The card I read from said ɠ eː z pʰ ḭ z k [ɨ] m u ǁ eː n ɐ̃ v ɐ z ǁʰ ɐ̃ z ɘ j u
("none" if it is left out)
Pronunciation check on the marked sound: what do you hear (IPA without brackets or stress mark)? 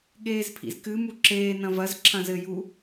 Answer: ɨ